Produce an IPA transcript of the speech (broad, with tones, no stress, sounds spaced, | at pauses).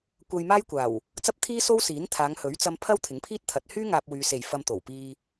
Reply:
kʷ ɐ˧ j m aː˥ j kʷ aː˨˩ w | t͡s ɐ˥ p̚ t̪ʰ iː˥ s o˥ w s iː˨˥ n t̪ʰ aː˨˧ ŋ h ɵ˨˥ ɥ t͡s ɐ˧ m pʰ ɐ˥ w t̪ʰ ɪ˨˥ ŋ pʰ iː˥ t̚ t̪ʰ ɐ˨˥ t̚ h yː˥ ŋ aː˧ p̚ w yː˨ s e˨˩ j f ɐ˧ m t̪ o˨˩ w p iː˧